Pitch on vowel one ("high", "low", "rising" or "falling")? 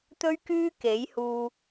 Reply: high